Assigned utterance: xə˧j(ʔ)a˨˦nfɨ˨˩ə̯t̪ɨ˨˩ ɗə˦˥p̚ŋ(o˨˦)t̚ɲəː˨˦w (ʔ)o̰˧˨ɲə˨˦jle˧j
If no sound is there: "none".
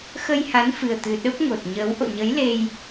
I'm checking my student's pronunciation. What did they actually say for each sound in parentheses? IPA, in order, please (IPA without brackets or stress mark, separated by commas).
h, o˨˩, ʔ